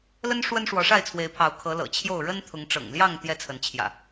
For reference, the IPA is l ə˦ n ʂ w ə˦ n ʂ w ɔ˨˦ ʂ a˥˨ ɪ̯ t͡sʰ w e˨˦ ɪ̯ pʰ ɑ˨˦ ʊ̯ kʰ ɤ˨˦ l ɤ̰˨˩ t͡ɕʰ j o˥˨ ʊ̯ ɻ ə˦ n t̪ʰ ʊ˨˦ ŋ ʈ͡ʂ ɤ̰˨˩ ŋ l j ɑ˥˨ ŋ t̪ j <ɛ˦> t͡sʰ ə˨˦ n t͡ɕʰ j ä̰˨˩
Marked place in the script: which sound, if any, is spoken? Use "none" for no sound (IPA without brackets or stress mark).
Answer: ɛ˦